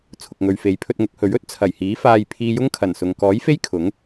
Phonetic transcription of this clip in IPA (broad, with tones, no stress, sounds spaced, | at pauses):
t͡sʰ ʊ˨ k̚ ŋ ɵ˨ ɥ f e˨˥ j pʰ ɵ˧ t̚ ŋ ʊ˨˥ k̚ h ɵ˨˥ ɥ ɵ˥ t̚ t͡sʰ ɐ˨˩ j h iː˨˥ f aː˧ j pʰ iː˧ j ʊ˥ ŋ kʰ ɐ˨˩ n s ʊ˨ ŋ k ɔː˨˥ j f e˥ j kʰ ʊ˨˥ ŋ